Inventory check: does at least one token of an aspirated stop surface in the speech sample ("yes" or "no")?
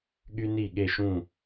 no